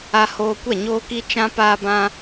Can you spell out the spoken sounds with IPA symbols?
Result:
a˧ h oː˧ kʷ ɛ˦˨ ɲ oː˧ k i˧ t͡ʃ ã˦ p aː˦ b ã˦

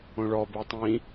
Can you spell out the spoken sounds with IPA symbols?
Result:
õ ɭ ɔ b e tˤ ĩ

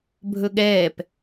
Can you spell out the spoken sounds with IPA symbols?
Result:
bʱ ɵ ɠ ɛː p

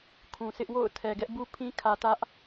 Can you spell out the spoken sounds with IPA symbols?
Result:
kʰ ũ˨ s ɪ˦ ʔ w o̰˦˨ ʊ̯ tʰ ɛ˨ ɡ ɛ˦ ʔ b u˦ pʰ ĩ˦ kʰ ä˨ t ä˦ ʔ

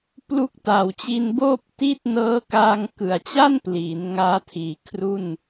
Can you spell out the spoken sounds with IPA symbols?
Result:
p l u˦˥ k̚ t a˨˩ w t͡ɕ i˧ n b oː˥˩ p̚ t i˥˩ t̚ n ɤː˦˥ k aː˧ ŋ k ɯ˨˩ a̯ t͡ɕ a˥˩ n p l iː˩˦ n ŋ aː˦˥ tʰ iː˨˩ kʰ r u˥˩ n

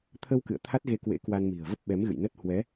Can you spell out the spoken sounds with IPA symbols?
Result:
t̪ʰ ə˧ w k ɨ̰˧˨ ə̯ t̪ʰ a˦˥ t̚ ɣ e˧ k w ḛ˧˥ k w a˧ n m i̤˨˩ ə̯ v ə˦˥ p̚ ɓ ɛ˨˦ m ɣ ɨ̰˧˨ j n ə˦˥ t̚ h w ɛ˨˦

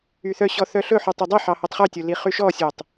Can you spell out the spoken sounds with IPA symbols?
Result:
y θ œ ɕ ɔ θ œ ɬ ɵ ħ y tˤ y dˤ e ħ ɑ h œ tˤ χ ø tʲ o l i χ y ʃ ɔ sʲ o tˤ

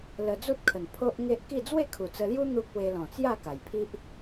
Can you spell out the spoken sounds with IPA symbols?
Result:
l ə˧ d͡z u˦ t̚ kʰ ə˨˩ n pʰ o˦ ʔ ŋ e˦ ʔ k i˥˧ d͡z w e˥˧ kʰ u˨˩ t͡s ə˧ l j u˦ n̪ u˦ k̚ w e˧ l ɔ̃˨˩ t͡s j a˥˧ k a˨˩ j pʰ i˦ ʔ

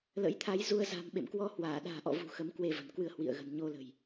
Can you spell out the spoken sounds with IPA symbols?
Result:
l ə̰˧˥ j t̪ʰ a˨˦ j z u˧ ə̯ z a̤˨˩ m ɓ ḛ˧˨ m k w ɔ˧ h w aː˧˩ ɗ a̤ː˨˩ ʔ ɔ̰˧˨ v ṳ˨˩ x ə˨˦ m k w e˧ v ə̤˨˩ n k w ɨ˧ ə̯ h w ḭ˧˨ ə̯ ɣ ə̤˨˩ n ɲ o˧ l ə̤˨˩ j

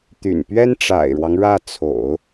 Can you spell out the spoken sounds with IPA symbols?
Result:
t̪ y̰˨˩ n p ɥ ɛ˥ n ʈ͡ʂ a̰˨˩ ɪ̯ ɻ w ɑ˦ ŋ ɻ ä˥˩ t͡sʰ o̰˨˩˦ ʊ̯

